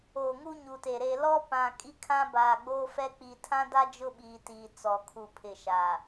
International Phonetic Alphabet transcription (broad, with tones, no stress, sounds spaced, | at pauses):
oː˨ ŋ u˦ ɲ u˨ t e˨ ɾ e˨ l ɔ˦ p ã˨ kʼ i˦ kʰ ã˦ b aː˨ ɡ͡b oː˦ f ɛ˦ k͡p i˨ tʰ ã˦ d a˦ d͡ʒ ʊ˦ ɓ iː˨ t iː˨ t͡s ɔ˨ kʰ u˨ pʰ ɪ˨ ʃ aː˨